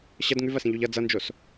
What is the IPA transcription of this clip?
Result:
ɕɐd ŋʉvɐsĩʎuʎ ʌ d͡zʌnd͡ʒos

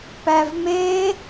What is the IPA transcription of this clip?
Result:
pævme

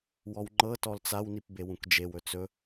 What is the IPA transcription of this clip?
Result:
wɔwŋ͡ǃɤ tɔlt͡saw nipbewũkd͡ʒew ɵt͡sɵ

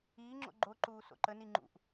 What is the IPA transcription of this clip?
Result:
iːŋ͡ǁo̰ ɡ͡ǃoǃuː so̰ǃəni ŋ͡ǃṵʔ

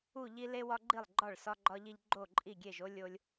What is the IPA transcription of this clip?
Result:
u˥˩ʎi˦ le˦wɒ˦ɡ͡ǃi˥˩lˠɡ͡ǃɒ˥˩ɭ sɒ˦ɡ͡ǃɒ˦ʎi˦ʎ ɡ͡ǃo˥˩ǃʼi˥˩ɡʲe˥˩ʒ o˦ lʲo˦lʲ

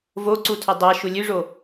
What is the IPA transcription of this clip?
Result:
voǀu tʰɵdˤaʃu lʲʉʐo

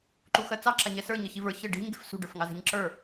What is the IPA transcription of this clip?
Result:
ǃuxɜt͡sɑ ǁaɲɛsə˞ ɲəçivə˞ çə ɖi̤ɲ ɡe̤fsṳ ɖə˞fŋɑze̤ɲǁə˞

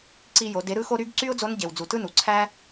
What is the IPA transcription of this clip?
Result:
ǀi˧jo˩˧ de˩˧ɾɯ˧xo˧ ɾy˧˥ɡǀy˥ʊ̯d͡zo˧˥n ɟe˩w d͡zu˩tɯ˥nu˩ ǀʰæ˥

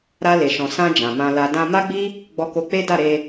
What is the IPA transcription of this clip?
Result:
ɾa˧ le˨ʃɔ̃˨ sã˧ d͡ʒã˨mã˧la˧ dã˧ ma˦ɡ͡bi˦ | ɡ͡bɔ˧ko˧k͡pe˦ da˦˨ɾe˧

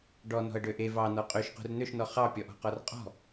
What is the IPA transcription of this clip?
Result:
ɖɔnɔ̤ə̯ɖø ʔe vɑnɔ qʼøʃqṳr n̪øʃnɔ χɑpʲɔʔɔ̤qɔr qʼɔ̤

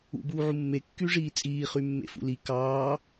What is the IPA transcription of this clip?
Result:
ṵbuːʕu mːe kːyʐiːt͡sʼiː χymːḛfṵli kɑː

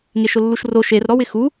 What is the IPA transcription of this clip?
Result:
ŋeʃʊlːuʃro ʃer ɾɔwɪxu

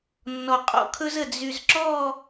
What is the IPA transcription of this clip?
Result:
nːɔ˨qʼɔ̰˦kʰɵ˦zə˨ d͡zy˨zǁɔ˦˨

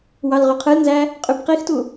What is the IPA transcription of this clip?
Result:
wɑlʁyqʰɯlnzæ | qʼybqixtu

